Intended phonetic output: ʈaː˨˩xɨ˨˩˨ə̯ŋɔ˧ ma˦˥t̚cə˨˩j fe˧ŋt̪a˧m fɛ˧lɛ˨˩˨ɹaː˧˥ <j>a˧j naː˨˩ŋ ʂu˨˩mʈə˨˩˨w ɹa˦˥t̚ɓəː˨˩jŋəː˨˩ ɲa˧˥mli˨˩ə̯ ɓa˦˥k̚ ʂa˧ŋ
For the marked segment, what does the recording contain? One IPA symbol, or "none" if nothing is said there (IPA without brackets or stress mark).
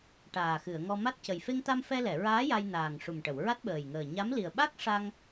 j